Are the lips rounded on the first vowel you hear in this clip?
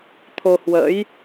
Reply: yes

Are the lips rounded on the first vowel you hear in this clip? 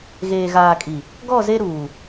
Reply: no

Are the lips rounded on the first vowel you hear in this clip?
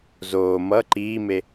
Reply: yes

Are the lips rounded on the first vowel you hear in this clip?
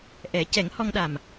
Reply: no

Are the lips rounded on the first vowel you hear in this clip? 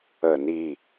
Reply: no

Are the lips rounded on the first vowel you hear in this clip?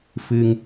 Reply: no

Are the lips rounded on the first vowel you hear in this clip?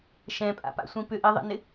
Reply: no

